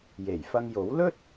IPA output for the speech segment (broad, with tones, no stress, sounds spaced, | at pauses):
j e˨˩ j f ɐ˧ ŋ j o˨˥ w l ɵ˥ t̚